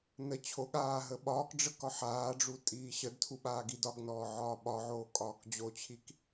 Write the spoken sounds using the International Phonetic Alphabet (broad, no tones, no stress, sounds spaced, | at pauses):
n ə t͡ɕʰ o ɠ aː ɦ ə ɓ ɒː k ɖ͡ʐ ə k ɒ ħ aː ɖ͡ʐ u tʼ iː ɕ ə d tʰ u ɓ aː ɡ i d ɒ ɡ n ɔː ʕ ɒː ɓ ɒ ʕ oː kʼ ɒː k d͡ʑ o t͡ɕʰ i k